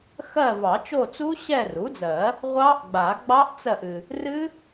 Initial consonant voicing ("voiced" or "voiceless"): voiceless